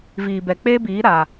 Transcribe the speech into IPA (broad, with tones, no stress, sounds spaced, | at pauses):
v iː˨ b ɛ˨ k͡p eː˦ b iː˨˦ ɾ a˨